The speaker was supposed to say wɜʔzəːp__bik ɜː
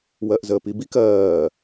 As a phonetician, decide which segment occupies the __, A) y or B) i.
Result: B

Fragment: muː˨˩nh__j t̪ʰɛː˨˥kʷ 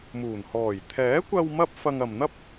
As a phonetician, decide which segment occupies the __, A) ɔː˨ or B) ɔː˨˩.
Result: B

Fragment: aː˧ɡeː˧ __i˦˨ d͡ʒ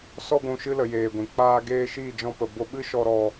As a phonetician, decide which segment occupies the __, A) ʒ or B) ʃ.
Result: B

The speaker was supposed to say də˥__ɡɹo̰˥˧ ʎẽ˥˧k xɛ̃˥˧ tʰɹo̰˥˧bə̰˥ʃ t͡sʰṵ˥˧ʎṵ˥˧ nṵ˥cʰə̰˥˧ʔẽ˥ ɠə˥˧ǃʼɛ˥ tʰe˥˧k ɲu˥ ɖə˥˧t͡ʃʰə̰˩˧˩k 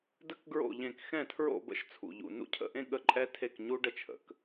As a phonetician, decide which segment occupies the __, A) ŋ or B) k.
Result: B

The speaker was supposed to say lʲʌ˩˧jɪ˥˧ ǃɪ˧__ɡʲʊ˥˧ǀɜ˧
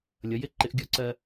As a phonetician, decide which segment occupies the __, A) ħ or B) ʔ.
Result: B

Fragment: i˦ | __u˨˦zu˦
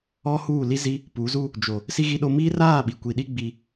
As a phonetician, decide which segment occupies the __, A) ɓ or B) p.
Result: B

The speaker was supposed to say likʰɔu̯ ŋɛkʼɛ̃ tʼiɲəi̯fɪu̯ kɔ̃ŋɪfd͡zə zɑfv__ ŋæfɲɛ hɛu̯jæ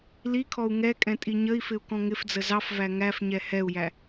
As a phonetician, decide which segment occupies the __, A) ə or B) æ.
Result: B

